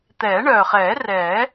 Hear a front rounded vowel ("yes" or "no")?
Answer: yes